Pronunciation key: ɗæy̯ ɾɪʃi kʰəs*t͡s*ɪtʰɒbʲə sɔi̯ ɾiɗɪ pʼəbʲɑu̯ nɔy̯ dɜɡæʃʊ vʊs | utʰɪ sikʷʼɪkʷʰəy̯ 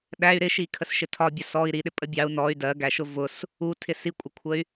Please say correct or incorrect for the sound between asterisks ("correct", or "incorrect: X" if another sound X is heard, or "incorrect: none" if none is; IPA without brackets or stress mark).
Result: incorrect: ʃ